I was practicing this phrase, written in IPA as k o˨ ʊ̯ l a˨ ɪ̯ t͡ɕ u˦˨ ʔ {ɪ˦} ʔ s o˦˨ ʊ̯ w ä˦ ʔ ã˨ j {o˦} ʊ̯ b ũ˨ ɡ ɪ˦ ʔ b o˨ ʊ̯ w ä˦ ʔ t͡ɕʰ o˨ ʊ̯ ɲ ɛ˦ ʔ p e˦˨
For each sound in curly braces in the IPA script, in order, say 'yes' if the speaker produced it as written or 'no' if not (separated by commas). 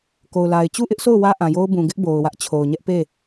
yes, yes